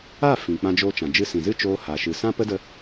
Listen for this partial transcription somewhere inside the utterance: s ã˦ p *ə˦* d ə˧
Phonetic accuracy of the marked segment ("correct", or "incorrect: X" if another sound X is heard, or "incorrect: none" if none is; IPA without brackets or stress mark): correct